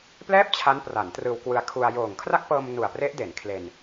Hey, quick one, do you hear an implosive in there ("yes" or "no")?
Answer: no